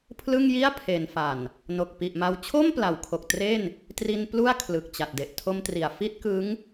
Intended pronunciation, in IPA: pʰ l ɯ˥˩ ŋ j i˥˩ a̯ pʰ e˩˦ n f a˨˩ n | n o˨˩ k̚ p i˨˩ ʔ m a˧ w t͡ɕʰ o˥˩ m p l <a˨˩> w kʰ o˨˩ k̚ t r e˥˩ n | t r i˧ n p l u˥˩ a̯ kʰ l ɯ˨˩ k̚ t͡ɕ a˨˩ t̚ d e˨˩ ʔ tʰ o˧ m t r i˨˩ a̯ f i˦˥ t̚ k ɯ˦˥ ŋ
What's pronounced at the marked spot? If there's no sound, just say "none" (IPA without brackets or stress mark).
a˩˦